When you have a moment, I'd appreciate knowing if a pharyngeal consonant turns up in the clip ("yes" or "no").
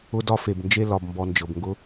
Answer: no